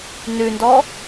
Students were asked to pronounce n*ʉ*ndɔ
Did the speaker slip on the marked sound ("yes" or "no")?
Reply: no